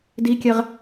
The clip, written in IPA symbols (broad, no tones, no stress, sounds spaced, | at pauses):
d i kʲ ɛ ʁ